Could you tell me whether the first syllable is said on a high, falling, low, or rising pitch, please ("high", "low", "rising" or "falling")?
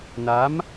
rising